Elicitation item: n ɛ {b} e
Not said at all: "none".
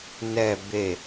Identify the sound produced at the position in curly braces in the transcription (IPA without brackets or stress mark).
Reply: b